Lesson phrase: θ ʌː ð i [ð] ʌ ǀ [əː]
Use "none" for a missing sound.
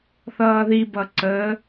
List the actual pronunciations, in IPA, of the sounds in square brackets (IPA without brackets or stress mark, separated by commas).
b, əː